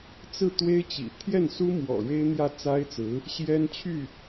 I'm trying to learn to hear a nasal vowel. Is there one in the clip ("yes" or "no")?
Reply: no